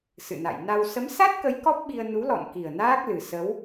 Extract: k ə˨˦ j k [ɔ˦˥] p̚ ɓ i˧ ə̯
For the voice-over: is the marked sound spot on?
yes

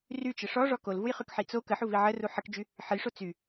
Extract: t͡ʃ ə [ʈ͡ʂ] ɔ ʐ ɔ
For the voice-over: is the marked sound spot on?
no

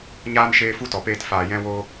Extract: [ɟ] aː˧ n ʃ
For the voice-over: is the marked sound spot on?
no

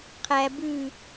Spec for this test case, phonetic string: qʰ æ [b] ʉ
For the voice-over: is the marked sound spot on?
yes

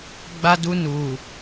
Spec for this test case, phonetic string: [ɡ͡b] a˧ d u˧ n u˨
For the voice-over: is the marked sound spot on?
yes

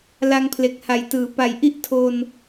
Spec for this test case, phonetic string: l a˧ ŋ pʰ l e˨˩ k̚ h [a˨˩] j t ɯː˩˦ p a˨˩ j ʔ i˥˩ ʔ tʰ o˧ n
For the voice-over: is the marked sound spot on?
yes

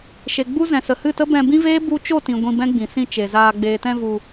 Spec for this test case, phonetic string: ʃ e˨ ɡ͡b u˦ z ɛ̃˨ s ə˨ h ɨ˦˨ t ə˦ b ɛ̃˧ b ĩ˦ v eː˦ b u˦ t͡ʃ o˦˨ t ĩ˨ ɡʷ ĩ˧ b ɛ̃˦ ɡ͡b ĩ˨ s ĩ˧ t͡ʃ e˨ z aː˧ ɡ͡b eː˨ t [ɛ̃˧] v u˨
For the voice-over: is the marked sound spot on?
yes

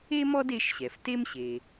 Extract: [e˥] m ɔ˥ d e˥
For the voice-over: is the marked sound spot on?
yes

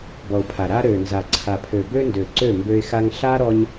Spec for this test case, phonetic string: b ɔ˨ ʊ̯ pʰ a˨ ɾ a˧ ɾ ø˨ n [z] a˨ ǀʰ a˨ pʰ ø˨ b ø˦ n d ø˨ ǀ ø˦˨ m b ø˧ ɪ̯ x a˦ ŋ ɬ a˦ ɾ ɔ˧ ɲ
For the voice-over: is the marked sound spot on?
yes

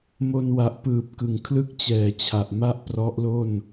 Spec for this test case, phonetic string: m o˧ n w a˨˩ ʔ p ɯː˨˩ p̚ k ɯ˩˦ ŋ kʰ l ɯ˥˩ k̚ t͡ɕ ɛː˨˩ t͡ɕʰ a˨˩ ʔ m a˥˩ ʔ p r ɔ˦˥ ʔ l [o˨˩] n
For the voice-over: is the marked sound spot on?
no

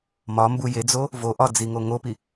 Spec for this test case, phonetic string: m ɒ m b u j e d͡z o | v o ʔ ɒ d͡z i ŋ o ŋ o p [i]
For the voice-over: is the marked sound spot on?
yes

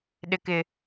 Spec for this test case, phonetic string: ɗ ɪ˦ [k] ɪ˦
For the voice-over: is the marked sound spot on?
yes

